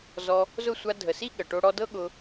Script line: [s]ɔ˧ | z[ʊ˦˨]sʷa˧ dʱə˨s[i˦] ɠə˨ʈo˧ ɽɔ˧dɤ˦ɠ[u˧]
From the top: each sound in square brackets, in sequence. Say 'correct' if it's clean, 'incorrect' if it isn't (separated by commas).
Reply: incorrect, correct, correct, incorrect